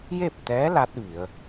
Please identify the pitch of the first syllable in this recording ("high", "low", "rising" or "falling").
falling